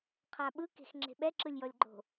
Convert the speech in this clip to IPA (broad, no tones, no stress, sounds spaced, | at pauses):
qʰ a ɓ ɯ k e̤ x ŋ͡ǁ e̤ ɓ ɛ ǁ ɯ lʲ j ɔ lʲ ɡ͡ǃ o̤